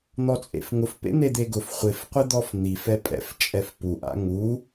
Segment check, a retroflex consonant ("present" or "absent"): absent